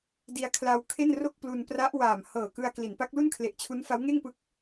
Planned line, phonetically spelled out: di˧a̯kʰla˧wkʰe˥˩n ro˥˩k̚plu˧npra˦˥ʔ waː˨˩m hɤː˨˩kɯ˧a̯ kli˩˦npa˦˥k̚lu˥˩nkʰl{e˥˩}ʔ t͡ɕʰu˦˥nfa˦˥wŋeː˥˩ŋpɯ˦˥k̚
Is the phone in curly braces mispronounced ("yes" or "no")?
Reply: yes